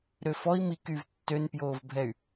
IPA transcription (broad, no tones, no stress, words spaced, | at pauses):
ɾøfɔi̯ mikyːv tːønpjoːvbʱɛy̯